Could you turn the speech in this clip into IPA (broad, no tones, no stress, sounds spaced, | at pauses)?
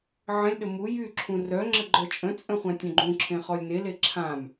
ʕ ə̃ lʲ ɗ ə m u j y ǁʰ ũ r œ ŋ͡ǁ ə ɡ͡ǃ œ t͡ʃʼ ə̃ t͡sʼ ə̃ χʷ ã tʲ œ̃ ɡ͡ǃ ũ ǁʰ ẽ χ ɔ lʲ n e l e ǁʰ ã m